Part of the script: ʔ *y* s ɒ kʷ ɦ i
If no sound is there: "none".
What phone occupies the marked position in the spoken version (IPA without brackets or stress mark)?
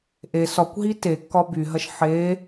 e